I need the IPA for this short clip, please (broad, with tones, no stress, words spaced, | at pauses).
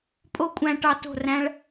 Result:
pʼo˦kʷʼæ̃˧ʈɑ˧ to̤˦˨ræ̃˦ɭ